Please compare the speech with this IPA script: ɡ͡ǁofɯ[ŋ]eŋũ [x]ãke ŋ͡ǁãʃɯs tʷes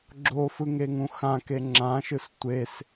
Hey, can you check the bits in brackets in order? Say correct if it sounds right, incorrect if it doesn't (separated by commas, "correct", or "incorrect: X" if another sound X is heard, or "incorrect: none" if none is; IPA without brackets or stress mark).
correct, correct